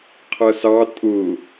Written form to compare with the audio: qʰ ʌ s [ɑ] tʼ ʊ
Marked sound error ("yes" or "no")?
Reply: no